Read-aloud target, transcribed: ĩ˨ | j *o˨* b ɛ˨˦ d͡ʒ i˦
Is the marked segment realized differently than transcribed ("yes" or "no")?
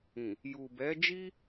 yes